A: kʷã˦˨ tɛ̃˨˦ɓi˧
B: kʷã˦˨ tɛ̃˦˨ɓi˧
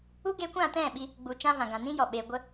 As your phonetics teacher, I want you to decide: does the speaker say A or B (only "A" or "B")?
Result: B